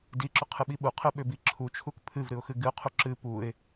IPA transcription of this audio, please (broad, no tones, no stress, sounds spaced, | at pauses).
d i ǁ ʏ qʰ ɨ ɓ i ɓ u qʰ ɨ ɓ ʏ b i ǁʰ u t͡ʃʰ u k pʰ ɨ v ɾ ɨ ʊ̯ x ɨ ɡ ɨ ʊ̯ qʰ u ǁ ɨ p u ɪ̯